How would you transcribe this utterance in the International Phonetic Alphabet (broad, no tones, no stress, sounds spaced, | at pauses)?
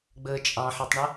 ɡ͡b əː t͡ʃʼ ɑ̃ ħ i tˤ ɳ ə